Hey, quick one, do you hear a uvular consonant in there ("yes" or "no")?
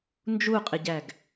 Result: yes